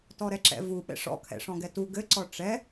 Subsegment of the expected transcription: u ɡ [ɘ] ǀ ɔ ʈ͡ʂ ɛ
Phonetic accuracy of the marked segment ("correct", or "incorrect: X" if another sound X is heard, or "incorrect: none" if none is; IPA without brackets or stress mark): correct